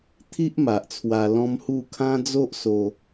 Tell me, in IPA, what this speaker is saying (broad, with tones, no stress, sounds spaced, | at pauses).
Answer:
t̪ʰ i˦ ʔ m a˨ ʔ t͡sʰ w a˧ l ɔ̃˦ m h u˥˧ kʰ ã˦ d͡z o˦ ʔ s o˧